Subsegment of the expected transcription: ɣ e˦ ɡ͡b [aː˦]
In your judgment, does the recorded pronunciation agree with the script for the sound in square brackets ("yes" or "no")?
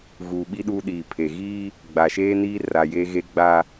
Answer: yes